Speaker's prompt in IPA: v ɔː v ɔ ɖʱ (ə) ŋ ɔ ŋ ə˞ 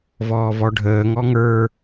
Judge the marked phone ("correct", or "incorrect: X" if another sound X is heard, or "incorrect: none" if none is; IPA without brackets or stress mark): incorrect: əː